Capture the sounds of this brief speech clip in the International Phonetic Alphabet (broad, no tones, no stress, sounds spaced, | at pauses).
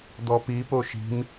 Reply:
d̪ ɔ p i p o ʃ i̤ m